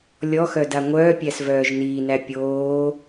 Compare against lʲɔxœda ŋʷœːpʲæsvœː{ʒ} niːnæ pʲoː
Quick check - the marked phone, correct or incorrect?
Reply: correct